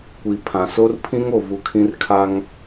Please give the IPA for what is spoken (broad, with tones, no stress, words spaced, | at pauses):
kʷi˨ pʰã˨so˦rpʰĩ˦ŋ o˨vu˨ kʰĩ˦rkʰa˦ŋ